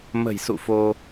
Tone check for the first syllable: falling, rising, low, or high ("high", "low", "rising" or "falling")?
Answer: low